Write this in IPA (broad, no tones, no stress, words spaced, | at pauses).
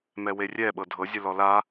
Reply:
mɛwerʲɛ ɓɤdʱɤ zʲɯlɔla